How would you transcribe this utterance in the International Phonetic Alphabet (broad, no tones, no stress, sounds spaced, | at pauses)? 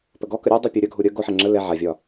p ə ɡ ɔ k ə ɾʲ ɒ dˤ u pʲ o ɾʲ ə ɡʱ u ɾʲ ə ɡ o ħ ɛ ŋ͡ǁ ə l ɛ ʕ a vʲ ɒ